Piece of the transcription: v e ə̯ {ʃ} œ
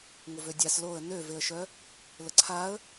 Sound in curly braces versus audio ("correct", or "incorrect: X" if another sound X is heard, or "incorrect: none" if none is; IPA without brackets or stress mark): correct